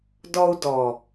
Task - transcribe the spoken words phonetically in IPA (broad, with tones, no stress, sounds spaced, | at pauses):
d ɔ˧ u̯ d ɔ˨